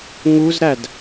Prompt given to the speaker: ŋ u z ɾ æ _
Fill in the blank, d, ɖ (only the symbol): d